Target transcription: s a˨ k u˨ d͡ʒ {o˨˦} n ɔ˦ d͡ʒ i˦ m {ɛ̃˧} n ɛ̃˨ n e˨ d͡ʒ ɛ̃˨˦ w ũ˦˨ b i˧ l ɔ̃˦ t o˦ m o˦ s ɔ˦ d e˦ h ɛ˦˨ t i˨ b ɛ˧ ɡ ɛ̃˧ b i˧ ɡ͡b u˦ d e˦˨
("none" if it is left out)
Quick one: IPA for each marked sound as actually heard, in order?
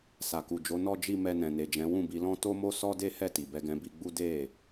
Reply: o˨˦, ɛ˧

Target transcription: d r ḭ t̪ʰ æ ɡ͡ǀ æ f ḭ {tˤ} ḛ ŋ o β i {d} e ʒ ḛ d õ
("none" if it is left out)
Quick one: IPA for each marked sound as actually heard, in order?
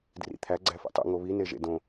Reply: tˤ, n

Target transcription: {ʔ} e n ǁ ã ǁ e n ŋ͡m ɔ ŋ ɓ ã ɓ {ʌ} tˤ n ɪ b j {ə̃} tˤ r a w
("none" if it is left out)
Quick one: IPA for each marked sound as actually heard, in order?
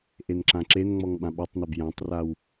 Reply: ʔ, ʌ, ã

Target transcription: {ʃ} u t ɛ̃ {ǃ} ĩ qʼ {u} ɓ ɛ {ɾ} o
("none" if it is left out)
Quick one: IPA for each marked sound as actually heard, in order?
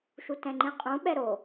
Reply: ʃ, ŋ͡ǃ, ũ, ɾ

